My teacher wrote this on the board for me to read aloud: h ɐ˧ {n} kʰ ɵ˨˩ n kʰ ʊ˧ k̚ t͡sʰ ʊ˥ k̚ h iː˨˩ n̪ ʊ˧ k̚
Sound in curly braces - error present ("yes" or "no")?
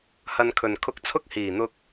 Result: no